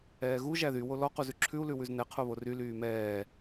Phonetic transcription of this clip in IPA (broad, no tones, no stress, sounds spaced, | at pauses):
ɛː ɣ u ʒ æ ð y w o l ɔ q u z ʉ ǁʰ ʉ u̯ l ʉ w ʉ z n ɛ qʰ o β o r y l yː m ɛː